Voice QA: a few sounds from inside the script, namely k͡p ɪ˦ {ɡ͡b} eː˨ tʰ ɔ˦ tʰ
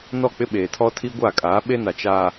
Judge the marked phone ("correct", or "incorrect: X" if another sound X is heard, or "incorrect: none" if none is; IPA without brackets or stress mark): incorrect: ɓ